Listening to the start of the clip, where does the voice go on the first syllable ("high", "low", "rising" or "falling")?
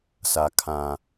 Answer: low